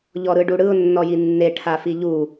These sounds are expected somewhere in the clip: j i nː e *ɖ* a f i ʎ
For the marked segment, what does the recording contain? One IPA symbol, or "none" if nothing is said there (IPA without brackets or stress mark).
ʈʰ